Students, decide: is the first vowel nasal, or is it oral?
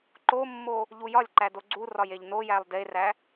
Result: oral